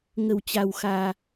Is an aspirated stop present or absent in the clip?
absent